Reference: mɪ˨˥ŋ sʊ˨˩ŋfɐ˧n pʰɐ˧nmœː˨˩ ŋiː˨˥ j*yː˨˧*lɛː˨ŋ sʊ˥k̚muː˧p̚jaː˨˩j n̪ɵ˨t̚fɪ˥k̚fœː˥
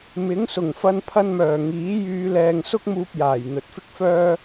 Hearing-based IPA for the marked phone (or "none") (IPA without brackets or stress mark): yː˨˧